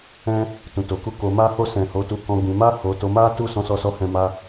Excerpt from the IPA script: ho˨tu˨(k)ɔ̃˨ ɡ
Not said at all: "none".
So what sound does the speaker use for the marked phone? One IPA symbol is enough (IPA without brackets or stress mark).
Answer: k